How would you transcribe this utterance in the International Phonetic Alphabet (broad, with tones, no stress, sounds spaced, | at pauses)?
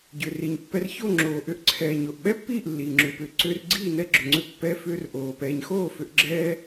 ɟ ʏ˨ r i˨ ɲ pː ɛ˧ r ç o˦˨ ŋ͡ǁ oː˨ ʔ ʏ˧ ʔ ǀʰ ɛː˨ ɲ o˨ ʔ ɓ ɛ˦ pː iː˦˨ ʔ lː iː˨ ŋ͡ǁ ʏː˧ p ʏː˧ ǀ ʏː˧ r ɡ͡ǀ iː˦˨ n ɛ˧ ɡ͡ǁ ʏ˨ ŋ͡ǀ ʏ˧ pː ɛ˧ f ʏː˧ r ʔ oː˨ p ɛː˨ ɲ x oː˦˨ f ʏ˧ ʔ ɡ͡ǁ ɛː˦